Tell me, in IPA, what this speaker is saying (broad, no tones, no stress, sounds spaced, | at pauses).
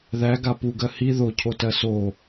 ð æ ɡ a p u ɡ ɜ h i ð o cʰ o t ɜ s o